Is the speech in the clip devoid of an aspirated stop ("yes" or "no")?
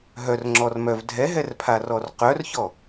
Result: no